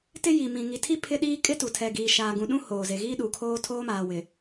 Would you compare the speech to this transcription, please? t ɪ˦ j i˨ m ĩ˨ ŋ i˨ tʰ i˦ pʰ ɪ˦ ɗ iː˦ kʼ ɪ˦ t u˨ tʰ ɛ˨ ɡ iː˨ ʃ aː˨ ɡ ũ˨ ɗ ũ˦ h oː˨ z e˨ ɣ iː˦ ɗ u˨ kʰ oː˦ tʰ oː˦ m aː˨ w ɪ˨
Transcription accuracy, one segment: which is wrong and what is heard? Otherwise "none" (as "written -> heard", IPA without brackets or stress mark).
none